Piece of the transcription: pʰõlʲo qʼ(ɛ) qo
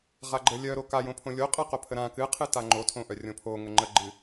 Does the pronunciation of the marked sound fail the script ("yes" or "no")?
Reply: yes